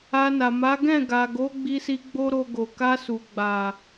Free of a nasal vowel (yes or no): no